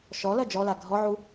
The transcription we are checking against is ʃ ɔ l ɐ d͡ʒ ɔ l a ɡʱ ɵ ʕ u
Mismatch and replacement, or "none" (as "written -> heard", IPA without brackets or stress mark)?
ɵ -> ɔ